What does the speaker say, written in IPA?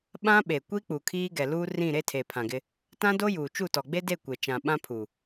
ɓ ã˦ ɓ e˨ kʷ i˦ k͡p u˨ kʰ iː˦ ɡ ɛ˨ l uː˦ r ĩ˦˨ ɾ e˦ tʰ eː˨ pʰ ã˨ ɡ ɪ˦ | t ã˦ d o˦ j uː˨ t͡ʃ u˦˨ t ɔ˨ ɡ͡b e˦ d e˦˨ kʷ e˨ t͡ʃ ã˨ ɓ ã˦ pʰ u˨

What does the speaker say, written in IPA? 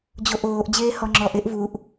d͡ʑ o ʔ oː ʔ d͡ʑ eː h ɔ ŋ͡ǁ ɔ ʔ e ʔ v u ʔ

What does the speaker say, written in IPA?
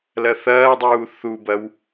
l ɐ θ ɐː dˤ uː θ u b ɐ w

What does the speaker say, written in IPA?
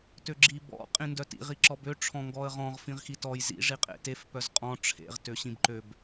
t ø ɡ͡ǁ i b ɔ̰ qʼ ĩ n d œ t ḭ ʁ i ǁ ɔ b ø ʈ͡ʂʰ ɔ̃ ŋ ɡ ɔ ə̯ ʁ ɔ̃ ʁ f ĩ ʁ x i t ɔ j z ḭ ʐ i qʼ ḛ t e f p œ z qʼ ɔ̃ ʈ͡ʂʰ ḛ ʁ t ø ɕ ĩ b ǃ ø b

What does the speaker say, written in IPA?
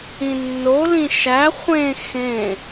ĩ nː o l ĩ ʃ æ χʷ ẽ x ẽ

